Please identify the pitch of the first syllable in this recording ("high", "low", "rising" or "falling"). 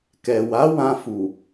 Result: low